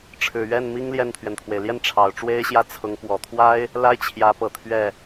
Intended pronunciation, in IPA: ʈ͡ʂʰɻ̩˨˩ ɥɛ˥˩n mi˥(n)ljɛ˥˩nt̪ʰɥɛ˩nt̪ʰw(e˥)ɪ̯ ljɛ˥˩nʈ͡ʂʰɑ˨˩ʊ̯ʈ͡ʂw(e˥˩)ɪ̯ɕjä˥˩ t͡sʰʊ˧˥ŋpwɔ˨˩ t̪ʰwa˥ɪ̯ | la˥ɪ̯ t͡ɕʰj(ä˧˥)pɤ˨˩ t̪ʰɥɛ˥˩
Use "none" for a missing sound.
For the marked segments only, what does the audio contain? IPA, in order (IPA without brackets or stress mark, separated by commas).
ŋ, e˩, e˥, ä˧˥